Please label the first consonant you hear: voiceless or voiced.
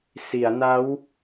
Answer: voiceless